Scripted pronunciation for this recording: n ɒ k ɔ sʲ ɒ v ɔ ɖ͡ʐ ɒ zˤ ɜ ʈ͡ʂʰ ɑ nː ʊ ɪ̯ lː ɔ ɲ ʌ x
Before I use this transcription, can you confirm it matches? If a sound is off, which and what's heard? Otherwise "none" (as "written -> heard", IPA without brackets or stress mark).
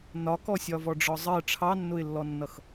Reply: ɲ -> nː